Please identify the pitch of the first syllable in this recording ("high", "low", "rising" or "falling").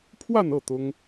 falling